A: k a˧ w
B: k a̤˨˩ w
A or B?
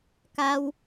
A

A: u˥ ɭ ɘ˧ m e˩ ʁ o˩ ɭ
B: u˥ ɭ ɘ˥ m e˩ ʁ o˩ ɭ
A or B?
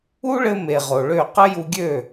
A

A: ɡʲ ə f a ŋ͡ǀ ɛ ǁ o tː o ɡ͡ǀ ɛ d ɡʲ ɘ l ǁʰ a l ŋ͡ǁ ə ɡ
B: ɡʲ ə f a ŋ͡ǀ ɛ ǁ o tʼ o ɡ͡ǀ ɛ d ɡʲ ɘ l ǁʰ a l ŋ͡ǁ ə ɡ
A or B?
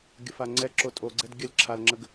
B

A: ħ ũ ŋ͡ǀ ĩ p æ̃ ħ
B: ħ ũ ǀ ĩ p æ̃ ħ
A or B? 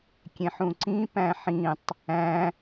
B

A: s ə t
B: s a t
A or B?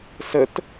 A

